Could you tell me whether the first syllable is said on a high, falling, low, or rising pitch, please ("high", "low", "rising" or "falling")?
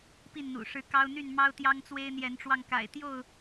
falling